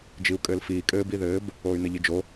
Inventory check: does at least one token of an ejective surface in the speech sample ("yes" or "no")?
yes